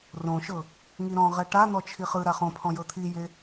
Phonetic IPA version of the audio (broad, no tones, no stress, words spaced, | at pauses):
rõʃɤ | ŋiɾɔ̃ ʁɛʈan̪ɔ t͡ʃʰiχɯ ɾaχõ pʰɔ̃jɤt̪ʰije